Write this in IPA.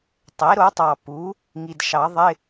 tˤ e˩˥ ɾ o˩˥ tˤ ɑ˨ p u˩˥ | ŋ i˨ d ʃ ɑ˨˩˦ ðˤ ɪ˧˥˧

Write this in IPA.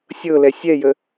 sʲ ɤ l ɛ sʲ ɛ j ə

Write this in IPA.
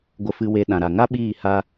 ɡʷ ə˧ f ɨ˧ w e˧ ɗ ã˨ ɾ a˨ ŋ a˦ ɓ iː˦˨ h a˦

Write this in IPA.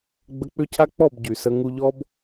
ɡ͡b ə˧ k͡p ʏ˦ cʰ a˦ k͡p ɔ˦˨ b ɟ y˨ s ə˧ ŋ u˧ ʎ ɔ˦ b

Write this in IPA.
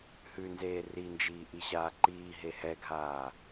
h ʉ n z eː r i n d͡ʒ iː ʔ i ɕ aː ǃ iː ɦ e h ɛ ɡʱ aː

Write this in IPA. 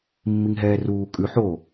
mː i ŋ ɦ ɛː r uː kʼ ʉ ħ o

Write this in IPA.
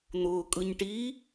n̪ ʊː kʼ ɯ ɲ ʈ i

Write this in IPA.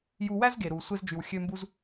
j u˧ w æ˥ z ɡ eː˩ ɾ uː˩ sʷ e˧ z d͡ʒ y˩ w xʲ ø˧ m b u˧ z

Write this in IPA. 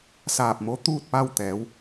s aː˧˩ p̚ m o˧˥ t̪ uː˥˨ t̚ p a˥˨ w t̪ ɛː˩˧ w

